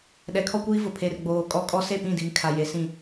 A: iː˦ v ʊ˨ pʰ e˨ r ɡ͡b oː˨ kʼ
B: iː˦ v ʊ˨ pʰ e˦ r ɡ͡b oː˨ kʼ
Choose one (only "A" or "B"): A